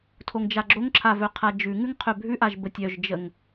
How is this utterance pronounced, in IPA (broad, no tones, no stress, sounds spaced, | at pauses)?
tʰ o ŋ d͡ʒ a ɡ͡ǁ o ŋ ǁʰ a v œ qʰ a d͡ʒ ʉ ŋ ʉ ŋ qʰ œ bʱ ʉ ʔ a ʒ b ə tʲ œ ʒ d͡ʒ ə ŋ